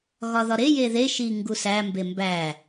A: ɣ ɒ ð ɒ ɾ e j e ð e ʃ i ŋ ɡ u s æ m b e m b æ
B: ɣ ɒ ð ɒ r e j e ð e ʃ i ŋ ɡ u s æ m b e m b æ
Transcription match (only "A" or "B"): A